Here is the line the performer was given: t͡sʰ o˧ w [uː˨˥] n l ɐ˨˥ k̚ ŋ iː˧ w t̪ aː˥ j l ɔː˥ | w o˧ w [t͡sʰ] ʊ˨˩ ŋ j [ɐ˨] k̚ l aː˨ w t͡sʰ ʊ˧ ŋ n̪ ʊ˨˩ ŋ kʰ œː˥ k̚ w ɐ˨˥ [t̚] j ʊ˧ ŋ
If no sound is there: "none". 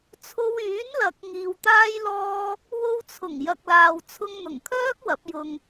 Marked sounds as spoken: yː˨˥, t͡sʰ, ɐ˨, p̚

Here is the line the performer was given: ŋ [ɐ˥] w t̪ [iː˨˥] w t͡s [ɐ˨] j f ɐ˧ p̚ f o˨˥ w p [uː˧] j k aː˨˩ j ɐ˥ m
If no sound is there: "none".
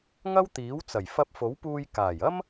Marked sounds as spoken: ɐ˥, iː˨˥, ɐ˨˩, uː˧

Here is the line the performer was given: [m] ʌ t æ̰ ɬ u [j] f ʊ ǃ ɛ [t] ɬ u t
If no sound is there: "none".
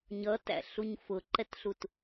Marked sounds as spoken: ɲ, ɲ, t

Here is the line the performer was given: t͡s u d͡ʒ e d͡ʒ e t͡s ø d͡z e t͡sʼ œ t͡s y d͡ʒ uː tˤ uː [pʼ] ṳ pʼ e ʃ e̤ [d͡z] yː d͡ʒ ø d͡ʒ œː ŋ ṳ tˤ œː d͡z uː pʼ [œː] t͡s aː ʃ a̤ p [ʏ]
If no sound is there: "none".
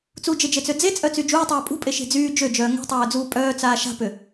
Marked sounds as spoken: pʼ, d͡z, œː, ʏ

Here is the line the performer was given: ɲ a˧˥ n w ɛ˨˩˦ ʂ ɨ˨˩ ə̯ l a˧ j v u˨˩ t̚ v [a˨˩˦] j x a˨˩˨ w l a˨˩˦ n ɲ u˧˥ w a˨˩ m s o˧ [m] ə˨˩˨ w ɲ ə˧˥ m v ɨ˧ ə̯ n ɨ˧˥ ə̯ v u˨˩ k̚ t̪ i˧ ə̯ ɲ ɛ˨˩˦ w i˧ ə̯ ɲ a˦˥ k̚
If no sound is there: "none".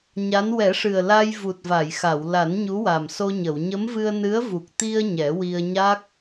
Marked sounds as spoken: a˨˩˨, ɲ

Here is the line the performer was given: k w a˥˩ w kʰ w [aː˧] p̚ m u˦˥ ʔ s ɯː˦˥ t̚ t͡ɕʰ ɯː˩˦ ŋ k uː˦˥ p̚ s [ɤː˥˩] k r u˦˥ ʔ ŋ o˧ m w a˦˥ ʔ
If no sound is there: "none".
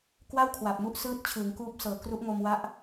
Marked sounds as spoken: aː˨˩, ɤː˨˩

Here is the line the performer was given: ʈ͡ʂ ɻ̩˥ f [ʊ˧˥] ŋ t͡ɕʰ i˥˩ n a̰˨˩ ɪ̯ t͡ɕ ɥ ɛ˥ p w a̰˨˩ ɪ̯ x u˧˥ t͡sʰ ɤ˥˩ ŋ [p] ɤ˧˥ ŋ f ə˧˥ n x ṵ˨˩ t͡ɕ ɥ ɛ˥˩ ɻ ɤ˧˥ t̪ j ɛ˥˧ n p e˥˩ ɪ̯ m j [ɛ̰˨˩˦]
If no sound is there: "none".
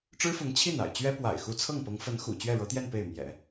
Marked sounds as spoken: ʊ˧˥, p, ɛ̰˨˩˦

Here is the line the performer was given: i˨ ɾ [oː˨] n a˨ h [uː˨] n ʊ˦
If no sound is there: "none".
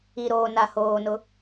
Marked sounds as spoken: oː˨, oː˨

